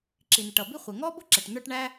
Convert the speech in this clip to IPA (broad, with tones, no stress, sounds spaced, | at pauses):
ǁ i˩ n̪ ɪ˩ ʈ ʌ˩ b i˥ χʷ ɪ˩ ŋ ɔ˥ b ʊ˥ ǁ ɛ˩ ʈ n̪ ə˞˥ ʈ ɳ æ˥